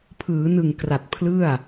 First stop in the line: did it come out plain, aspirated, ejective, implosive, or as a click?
aspirated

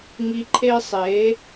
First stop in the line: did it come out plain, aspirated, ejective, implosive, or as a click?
click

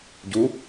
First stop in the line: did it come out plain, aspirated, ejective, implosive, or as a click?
plain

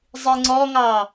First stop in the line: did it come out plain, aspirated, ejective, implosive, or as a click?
click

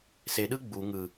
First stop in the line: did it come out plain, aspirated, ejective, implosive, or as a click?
implosive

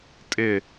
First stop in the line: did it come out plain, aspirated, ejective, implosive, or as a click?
ejective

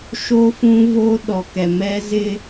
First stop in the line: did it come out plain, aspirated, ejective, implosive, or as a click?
implosive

